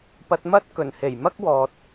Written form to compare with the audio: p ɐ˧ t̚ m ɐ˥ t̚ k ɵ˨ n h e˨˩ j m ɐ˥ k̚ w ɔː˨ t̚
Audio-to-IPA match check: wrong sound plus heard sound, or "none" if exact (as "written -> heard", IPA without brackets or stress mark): ɵ˨ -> ɵ˨˩